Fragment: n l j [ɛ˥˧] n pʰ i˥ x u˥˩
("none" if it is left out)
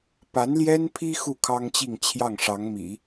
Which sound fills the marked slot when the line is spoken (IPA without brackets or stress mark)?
ɛ˥